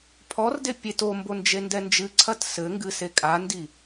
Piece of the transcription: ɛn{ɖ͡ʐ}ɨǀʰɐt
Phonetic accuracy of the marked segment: incorrect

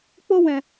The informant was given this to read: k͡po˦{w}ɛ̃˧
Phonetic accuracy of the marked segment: correct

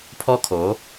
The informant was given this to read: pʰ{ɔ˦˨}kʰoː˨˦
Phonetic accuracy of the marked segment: incorrect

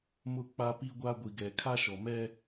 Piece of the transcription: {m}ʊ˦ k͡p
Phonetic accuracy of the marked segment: correct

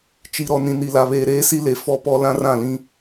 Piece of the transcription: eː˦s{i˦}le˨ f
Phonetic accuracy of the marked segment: correct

